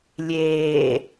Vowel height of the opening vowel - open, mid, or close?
mid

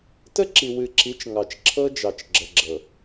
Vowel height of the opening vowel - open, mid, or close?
mid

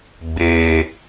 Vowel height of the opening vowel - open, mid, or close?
mid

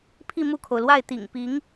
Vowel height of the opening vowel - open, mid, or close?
close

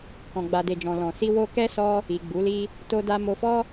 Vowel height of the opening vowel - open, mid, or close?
mid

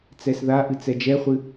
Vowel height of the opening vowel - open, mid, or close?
mid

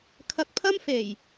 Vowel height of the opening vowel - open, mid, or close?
open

